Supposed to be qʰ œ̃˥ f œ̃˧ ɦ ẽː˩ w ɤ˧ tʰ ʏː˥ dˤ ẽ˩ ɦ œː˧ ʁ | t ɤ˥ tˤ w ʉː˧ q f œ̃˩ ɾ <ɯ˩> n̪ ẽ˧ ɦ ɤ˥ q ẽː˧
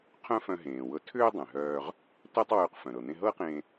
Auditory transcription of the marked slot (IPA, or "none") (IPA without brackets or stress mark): ɤ˩